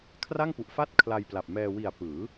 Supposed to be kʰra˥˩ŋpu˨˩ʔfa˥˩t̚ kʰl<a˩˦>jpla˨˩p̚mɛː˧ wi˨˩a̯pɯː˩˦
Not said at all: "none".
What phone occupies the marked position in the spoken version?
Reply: a˧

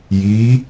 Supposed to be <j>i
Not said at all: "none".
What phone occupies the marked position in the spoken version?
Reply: j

